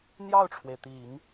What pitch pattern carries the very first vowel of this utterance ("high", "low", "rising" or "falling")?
falling